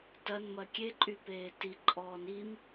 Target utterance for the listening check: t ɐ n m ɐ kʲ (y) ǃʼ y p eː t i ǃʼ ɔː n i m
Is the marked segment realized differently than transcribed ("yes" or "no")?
yes